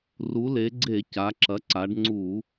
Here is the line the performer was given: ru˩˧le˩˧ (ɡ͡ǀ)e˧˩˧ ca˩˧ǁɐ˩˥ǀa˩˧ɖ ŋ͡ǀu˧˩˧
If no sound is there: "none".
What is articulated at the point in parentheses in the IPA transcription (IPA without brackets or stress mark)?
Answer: ɡ͡ǀ